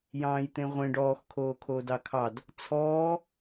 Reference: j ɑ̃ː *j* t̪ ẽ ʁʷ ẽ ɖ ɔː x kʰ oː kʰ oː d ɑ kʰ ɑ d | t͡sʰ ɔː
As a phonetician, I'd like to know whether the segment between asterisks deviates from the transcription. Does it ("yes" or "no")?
no